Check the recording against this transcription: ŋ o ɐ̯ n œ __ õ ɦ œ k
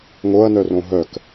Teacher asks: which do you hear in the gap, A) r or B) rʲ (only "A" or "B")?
A